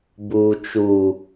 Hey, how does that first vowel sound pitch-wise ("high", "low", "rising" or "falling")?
low